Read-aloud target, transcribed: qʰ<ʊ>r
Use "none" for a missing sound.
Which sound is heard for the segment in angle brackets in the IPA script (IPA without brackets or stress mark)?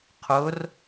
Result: ʊ